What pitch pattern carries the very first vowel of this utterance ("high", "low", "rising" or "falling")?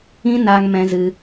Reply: high